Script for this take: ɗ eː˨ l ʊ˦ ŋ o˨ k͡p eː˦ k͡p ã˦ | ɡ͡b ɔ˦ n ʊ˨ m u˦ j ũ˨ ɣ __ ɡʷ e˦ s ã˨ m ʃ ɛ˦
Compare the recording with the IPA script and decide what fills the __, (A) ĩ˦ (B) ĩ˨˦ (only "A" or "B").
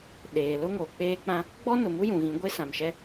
B